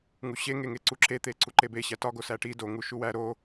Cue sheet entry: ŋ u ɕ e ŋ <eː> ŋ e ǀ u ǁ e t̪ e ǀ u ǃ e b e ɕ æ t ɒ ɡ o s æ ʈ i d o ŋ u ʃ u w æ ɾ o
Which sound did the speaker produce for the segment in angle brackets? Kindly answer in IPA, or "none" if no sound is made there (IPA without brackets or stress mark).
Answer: e